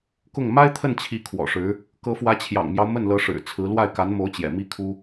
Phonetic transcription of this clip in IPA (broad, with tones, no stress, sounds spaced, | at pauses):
k ʊ˥˩ ŋ m a˥ ɪ̯ t̪ʰ ə˥˩ n t͡ɕʰ i˧˥ kʰ w ɔ̰˨˩ ʂ ɻ̩˧˥ | k ɤ˧˥ f w ä˧˥ t͡ɕʰ j ɑ̰˨˩ ŋ m j ɑ˦ ʊ̯ m ə˥˩ n l ɤ˧˥ ʂ ɻ̩˨˩ t͡sʰ ɹ̩˧˥ l w a˥˩ ɪ̯ k a˧˥ n m o˧˥ ʊ̯ t͡ɕ j ɛ̰˨˩ m i˥ kʰ u˥